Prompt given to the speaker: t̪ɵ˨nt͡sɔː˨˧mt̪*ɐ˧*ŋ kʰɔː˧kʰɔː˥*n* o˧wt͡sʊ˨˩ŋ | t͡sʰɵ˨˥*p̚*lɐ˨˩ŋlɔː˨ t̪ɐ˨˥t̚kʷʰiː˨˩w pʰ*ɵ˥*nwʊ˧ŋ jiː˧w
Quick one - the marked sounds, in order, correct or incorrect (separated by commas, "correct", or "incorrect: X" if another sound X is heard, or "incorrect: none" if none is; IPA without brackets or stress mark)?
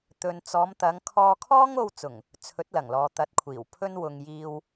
incorrect: ɐ˨˧, incorrect: ŋ, incorrect: t̚, correct